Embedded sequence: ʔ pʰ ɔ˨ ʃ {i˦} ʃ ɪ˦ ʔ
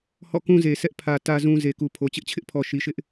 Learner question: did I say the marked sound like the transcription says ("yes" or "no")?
no